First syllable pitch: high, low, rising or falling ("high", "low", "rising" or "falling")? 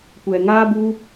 low